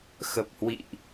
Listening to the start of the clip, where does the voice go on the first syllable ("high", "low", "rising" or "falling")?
low